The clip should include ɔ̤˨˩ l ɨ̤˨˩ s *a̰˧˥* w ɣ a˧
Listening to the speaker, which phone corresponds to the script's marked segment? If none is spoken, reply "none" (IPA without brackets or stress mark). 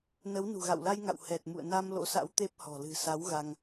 a˨˦